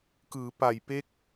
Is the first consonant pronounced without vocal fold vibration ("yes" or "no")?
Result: yes